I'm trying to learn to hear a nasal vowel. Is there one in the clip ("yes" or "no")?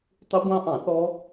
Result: yes